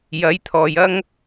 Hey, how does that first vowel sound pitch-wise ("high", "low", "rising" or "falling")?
rising